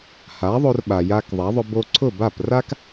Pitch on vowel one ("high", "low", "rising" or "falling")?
rising